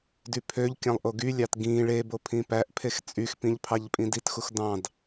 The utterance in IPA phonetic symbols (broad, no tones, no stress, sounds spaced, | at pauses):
d y pʰ ø ʎ kʲ ɑ̃ lˠ ʔ o ɡ y lʲ ɑ t ɡ ĩ ɭ e b o pʰ ĩ p æ ʔ pʰ e x t͡sʼ y x p ĩ ʎ pʰ ɑ ʎ pʼ ĩ d i t x u x d ɑ̃ d